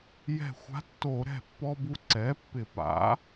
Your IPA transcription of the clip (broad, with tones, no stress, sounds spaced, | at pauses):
j ɛ̤˧˩ xʷ a̤˧˥ tː o˧˩˧ ɾ ɛ̤˧˩ pː ɔ˧ b u˧ ǀ ɛ˩˥ pː ɪ˧˩˧ p a̰˩˥